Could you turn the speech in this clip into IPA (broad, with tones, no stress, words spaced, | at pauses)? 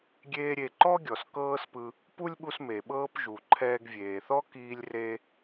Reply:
ɡʲeː˥ɾʲe˧ ǃɔ˥ɡʲɔ˩s kɤː˥spɯ˧ | pu˥lʲɓu˧s me˩ ɓɤː˥pʒu˩ ǃʰɛː˧ɡvʲeː˩θɔ˥ kiː˧lʲre˧